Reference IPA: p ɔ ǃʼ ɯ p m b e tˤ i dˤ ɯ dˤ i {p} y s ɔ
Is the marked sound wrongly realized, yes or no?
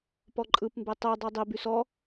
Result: yes